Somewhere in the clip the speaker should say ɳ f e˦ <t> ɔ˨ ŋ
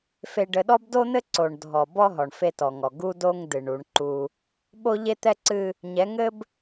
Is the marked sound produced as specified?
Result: yes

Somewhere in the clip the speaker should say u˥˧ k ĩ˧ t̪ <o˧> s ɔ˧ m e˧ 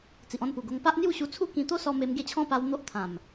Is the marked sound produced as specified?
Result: no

